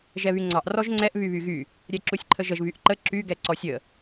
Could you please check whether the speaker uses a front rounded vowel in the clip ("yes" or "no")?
yes